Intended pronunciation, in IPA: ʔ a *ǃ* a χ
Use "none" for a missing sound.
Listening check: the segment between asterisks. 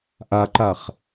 ǃ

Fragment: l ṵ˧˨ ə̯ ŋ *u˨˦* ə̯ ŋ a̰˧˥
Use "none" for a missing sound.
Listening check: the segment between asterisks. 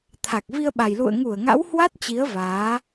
u˧˩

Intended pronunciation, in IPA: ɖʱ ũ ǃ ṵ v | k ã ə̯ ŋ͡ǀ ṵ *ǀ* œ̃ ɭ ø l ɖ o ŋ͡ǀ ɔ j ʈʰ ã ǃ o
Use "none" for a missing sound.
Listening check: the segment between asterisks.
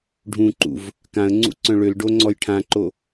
ǀ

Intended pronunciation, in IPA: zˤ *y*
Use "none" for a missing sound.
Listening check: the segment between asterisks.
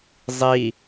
i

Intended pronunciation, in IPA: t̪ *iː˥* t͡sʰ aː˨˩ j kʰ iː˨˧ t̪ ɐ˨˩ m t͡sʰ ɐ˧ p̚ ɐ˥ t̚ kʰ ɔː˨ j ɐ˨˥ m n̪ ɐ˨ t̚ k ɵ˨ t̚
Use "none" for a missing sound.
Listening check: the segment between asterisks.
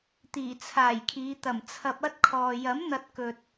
iː˨˩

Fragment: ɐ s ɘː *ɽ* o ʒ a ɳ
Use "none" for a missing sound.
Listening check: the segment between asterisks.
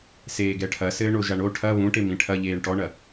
ɳ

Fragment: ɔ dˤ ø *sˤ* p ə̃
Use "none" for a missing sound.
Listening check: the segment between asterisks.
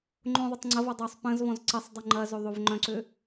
sˤ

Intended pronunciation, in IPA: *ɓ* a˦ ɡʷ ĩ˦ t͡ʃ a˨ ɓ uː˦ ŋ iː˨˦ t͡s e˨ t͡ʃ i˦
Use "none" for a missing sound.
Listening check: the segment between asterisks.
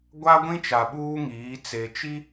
ɡʷ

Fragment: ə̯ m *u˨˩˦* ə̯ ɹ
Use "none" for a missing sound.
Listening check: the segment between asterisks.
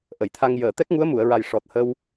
u˨˩˨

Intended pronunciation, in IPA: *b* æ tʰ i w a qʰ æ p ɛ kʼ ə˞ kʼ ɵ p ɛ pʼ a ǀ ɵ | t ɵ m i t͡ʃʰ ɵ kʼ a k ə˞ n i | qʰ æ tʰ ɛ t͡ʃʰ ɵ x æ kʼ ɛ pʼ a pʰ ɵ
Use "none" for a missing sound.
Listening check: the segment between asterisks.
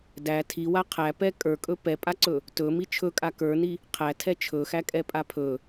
d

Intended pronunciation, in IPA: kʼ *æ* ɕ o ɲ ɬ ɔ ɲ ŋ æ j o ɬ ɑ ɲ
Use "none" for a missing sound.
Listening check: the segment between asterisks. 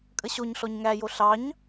ə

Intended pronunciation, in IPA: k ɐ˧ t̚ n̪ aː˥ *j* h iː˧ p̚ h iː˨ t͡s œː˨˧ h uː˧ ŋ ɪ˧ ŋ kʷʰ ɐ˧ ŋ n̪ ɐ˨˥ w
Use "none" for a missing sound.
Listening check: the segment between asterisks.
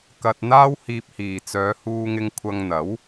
w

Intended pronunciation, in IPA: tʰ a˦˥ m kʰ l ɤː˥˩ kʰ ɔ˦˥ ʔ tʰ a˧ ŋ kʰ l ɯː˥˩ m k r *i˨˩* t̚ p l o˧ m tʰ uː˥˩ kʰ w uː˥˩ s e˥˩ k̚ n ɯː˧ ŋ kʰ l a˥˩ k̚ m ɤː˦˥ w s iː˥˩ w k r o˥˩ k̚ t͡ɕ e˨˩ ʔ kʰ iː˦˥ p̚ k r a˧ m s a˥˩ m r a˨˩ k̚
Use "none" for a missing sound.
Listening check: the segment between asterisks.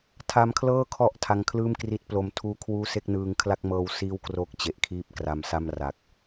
i˦˥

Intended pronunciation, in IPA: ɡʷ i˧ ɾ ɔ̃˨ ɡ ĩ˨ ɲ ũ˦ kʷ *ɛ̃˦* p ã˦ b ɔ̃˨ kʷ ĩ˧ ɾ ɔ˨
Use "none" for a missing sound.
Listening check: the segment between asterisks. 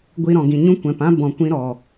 ɛ̃˨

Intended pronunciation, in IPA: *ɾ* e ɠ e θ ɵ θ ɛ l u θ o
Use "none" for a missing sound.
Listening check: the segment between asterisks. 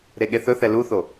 ɾ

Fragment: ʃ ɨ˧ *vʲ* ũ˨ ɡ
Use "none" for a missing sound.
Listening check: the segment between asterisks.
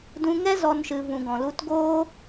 v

